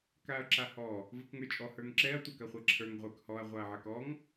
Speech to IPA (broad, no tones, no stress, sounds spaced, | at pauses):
k a ɐ̯ ǁ a h ɔ | v ə k ŋ ə˞ t͡ʃʼ ɔ h ə˞ ŋ ǁ ɛ ɐ̯ tʷ œ k ɐ χʷ a ǁʰ ə˞ ŋ ʁʷ ə˞ k h ɔ ɐ̯ ʁʷ a ɐ̯ ʕ ɐ k ɔ ŋ